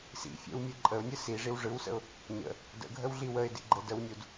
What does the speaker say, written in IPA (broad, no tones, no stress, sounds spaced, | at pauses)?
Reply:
s ḭ fʲ ə̰ w mʲ ɯ ǃʼ ə ʊ̯ nʲ ɯ s i ʐ i w ʐ ɯ w s ə̰ ʊ̯ | ɲ ə̰ | d ə̰ ɡʱ ə w ɮ i w ə ɪ̯ d ḭ ɡ͡ǃ ə d ə w nʲ u d